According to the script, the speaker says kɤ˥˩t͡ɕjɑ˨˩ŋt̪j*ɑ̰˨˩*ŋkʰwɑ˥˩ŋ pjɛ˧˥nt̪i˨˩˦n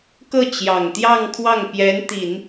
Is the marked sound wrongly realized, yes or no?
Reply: yes